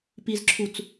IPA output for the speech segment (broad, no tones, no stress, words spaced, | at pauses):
pizǁʰut͡s